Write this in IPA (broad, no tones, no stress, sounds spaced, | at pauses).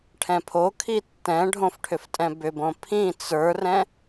ʈʰ ɛ̃ pʰ o kʰ i tː ɛ̃ ɖʱ õ f ʈʰ ʏ f tʼ ɛ̃ b ʏ b õ pʰ ĩ t͡s ə˞ r ɛ̃